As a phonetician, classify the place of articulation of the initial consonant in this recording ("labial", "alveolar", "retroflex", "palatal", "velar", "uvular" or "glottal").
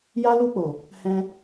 palatal